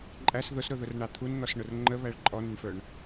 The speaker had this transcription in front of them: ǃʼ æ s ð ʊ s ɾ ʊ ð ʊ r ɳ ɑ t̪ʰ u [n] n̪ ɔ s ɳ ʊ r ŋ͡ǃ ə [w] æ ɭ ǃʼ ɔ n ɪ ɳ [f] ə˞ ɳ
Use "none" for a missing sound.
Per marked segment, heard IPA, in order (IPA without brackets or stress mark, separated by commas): n, β, f